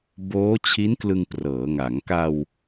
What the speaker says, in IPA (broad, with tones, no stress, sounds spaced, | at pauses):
b oː˦˥ t͡ɕʰ i˦˥ n k l ɯ˧ ŋ p r ɤː˩˦ ŋ a˩˦ ŋ k a˧ w